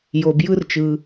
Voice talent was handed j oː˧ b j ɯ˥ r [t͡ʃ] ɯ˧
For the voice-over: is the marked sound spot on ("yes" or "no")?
yes